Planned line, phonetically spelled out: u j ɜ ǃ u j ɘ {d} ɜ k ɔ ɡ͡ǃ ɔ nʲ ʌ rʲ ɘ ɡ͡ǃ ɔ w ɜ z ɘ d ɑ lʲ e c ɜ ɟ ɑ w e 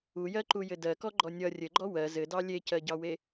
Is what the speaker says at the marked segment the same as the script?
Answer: yes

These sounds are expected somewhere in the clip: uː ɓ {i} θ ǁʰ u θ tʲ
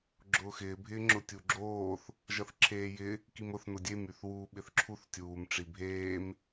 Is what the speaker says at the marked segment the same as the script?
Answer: no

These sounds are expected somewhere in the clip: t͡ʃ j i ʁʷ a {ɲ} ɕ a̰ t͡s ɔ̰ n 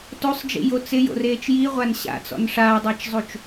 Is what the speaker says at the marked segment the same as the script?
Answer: no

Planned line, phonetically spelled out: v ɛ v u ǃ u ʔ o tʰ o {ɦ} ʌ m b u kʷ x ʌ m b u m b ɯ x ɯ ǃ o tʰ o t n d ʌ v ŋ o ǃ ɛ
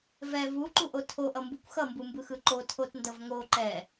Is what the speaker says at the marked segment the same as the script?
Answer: no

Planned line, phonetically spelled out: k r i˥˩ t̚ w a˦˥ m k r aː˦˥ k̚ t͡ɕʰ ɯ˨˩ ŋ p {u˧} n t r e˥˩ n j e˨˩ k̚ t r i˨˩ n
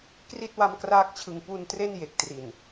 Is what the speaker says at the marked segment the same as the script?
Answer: yes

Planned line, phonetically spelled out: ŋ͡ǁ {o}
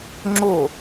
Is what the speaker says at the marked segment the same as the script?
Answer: yes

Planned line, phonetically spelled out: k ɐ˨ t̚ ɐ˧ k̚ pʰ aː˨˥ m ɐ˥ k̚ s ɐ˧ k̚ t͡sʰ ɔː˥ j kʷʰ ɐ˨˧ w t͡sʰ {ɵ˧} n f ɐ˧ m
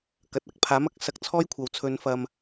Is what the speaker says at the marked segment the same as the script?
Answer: yes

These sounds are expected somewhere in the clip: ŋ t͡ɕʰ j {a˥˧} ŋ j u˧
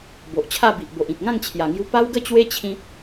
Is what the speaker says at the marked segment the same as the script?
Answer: no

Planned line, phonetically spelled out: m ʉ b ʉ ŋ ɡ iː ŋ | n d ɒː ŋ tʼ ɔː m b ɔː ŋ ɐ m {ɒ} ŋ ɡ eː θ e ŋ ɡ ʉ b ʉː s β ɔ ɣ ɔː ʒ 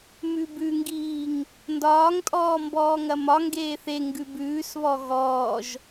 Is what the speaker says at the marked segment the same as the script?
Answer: yes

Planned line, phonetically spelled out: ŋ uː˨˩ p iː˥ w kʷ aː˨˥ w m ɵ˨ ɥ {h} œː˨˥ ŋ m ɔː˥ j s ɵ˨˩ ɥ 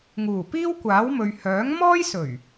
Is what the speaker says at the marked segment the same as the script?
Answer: yes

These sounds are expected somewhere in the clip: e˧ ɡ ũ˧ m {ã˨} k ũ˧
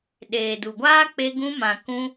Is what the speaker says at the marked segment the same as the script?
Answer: yes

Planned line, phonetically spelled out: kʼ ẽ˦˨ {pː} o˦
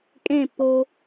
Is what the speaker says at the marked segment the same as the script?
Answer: yes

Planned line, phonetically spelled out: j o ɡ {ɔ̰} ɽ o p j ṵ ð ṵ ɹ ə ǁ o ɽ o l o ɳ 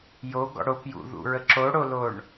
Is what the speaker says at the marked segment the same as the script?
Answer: yes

